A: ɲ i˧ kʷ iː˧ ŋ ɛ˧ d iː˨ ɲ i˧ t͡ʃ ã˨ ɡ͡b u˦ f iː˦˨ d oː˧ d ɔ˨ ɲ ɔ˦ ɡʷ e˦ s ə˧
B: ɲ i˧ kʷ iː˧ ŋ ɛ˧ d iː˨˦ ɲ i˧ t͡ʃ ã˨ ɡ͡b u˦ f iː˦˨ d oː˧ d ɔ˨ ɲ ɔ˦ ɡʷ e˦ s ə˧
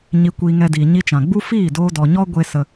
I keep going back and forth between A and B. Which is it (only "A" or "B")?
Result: A